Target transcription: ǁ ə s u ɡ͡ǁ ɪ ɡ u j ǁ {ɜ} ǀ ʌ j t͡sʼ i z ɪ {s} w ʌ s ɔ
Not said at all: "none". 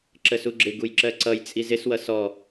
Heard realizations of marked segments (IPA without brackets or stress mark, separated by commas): ɜ, s